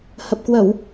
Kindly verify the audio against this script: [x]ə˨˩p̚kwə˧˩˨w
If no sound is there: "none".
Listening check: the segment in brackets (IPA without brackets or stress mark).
h